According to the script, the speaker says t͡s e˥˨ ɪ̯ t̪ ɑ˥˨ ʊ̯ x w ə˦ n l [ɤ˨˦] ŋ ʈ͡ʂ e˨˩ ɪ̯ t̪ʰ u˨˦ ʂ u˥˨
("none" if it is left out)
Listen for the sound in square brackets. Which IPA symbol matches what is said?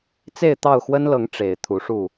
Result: ɤ˨˦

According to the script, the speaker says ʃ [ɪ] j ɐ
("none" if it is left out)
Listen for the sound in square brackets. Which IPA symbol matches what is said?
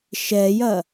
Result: ɛ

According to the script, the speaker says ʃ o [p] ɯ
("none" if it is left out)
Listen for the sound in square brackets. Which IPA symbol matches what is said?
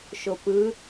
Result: p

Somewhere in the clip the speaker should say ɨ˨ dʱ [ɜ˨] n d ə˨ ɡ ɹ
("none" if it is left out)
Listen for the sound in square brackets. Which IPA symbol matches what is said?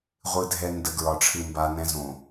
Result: ɛ˨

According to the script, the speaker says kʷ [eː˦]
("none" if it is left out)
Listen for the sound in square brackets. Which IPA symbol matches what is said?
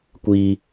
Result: iː˦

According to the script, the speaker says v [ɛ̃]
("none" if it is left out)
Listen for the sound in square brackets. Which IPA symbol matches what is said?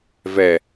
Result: ɛ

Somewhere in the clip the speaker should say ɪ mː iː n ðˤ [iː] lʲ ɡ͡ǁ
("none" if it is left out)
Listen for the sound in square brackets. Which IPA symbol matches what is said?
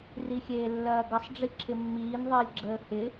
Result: ɪː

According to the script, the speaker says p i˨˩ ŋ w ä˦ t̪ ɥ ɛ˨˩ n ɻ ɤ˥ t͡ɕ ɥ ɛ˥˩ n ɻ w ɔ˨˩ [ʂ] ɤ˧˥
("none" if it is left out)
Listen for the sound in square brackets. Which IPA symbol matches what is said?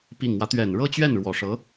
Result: ʂ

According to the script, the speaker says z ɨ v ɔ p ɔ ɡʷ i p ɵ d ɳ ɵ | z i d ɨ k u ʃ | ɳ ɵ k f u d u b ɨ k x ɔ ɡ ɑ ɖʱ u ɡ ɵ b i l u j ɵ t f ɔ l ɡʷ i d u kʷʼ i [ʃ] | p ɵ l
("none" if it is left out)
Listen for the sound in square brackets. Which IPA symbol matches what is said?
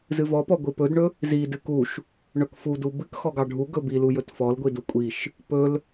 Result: ʃ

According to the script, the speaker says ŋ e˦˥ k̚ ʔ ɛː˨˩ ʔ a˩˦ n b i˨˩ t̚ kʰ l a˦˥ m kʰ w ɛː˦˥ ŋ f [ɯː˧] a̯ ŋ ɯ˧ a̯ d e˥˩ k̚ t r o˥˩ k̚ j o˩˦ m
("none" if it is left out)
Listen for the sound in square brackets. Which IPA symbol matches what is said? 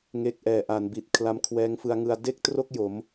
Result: ɯ˧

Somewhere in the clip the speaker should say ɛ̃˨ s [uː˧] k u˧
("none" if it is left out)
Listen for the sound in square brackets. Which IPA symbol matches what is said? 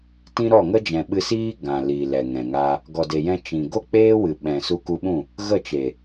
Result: u˧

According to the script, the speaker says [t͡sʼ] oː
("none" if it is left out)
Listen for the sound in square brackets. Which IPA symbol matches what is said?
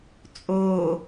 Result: t͡sʼ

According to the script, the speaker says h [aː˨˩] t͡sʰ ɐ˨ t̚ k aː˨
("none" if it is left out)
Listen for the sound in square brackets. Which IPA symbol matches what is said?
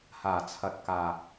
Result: aː˨˩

